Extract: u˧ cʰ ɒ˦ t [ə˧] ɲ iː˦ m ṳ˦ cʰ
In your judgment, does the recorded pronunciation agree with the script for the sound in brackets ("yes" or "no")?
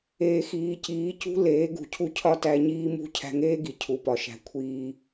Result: no